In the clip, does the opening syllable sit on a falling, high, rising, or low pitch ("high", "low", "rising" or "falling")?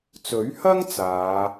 rising